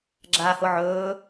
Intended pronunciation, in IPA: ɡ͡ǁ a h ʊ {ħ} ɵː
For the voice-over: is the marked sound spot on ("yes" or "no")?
no